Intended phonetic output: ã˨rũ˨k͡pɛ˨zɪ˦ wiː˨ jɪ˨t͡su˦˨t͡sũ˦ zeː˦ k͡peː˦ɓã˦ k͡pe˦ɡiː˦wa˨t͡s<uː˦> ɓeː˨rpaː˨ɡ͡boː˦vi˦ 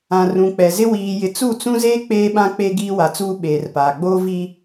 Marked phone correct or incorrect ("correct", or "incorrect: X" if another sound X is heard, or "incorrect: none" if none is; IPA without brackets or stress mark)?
correct